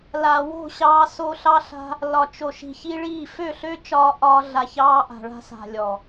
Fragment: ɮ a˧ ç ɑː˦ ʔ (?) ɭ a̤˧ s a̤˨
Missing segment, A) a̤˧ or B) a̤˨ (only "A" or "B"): B